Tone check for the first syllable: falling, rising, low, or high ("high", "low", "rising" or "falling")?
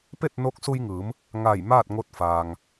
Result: falling